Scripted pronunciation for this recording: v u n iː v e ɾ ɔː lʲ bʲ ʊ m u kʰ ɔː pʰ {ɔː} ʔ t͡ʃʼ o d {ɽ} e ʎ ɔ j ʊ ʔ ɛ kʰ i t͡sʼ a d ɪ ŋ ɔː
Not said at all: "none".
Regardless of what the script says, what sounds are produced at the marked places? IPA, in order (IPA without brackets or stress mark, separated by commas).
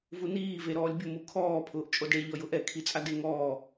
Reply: ʊː, ɽ